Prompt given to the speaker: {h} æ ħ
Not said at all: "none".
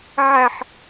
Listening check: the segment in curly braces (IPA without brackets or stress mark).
ʕ